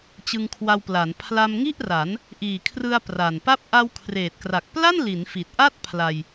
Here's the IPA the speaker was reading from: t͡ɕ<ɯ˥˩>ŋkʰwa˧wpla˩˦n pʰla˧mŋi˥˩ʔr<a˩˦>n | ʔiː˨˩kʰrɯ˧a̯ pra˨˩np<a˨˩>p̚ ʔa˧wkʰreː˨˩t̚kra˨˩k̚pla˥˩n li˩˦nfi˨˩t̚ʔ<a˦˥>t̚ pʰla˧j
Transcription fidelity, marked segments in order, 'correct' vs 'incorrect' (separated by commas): incorrect, correct, incorrect, incorrect